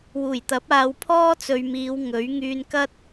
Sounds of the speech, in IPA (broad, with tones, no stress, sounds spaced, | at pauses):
w uː˨˩ j t̪ ɐ˨˥ p̚ aː˨ w pʰ ɔː˥ t͡s ɵ˨ ɥ m iː˨˧ w ŋ ɵ˨˥ ɥ ŋ yː˧ n k ɐ˥ t̚